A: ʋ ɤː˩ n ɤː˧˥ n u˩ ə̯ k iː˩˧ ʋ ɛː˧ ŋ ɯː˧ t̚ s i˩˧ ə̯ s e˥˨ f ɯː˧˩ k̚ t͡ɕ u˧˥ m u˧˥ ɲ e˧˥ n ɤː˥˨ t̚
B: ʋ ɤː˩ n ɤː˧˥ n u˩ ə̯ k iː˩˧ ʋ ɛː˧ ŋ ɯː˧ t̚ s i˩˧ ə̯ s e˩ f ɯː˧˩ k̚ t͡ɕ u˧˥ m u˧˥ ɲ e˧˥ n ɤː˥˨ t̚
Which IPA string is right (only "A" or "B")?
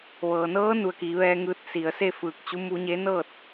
A